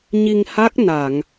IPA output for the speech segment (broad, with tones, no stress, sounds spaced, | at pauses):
ɲ i˧ ŋ h a˦˥ k̚ n a˨˩˨ ŋ